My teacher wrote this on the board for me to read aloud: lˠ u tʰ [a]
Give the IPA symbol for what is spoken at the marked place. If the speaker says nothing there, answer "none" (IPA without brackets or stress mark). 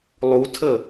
ə